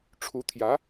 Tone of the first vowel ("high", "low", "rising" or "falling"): rising